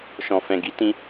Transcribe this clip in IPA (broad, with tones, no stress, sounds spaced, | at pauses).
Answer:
ʃ ɔ̃˨ f ɛ̃˨ ɡ i˨˦ t ĩ˧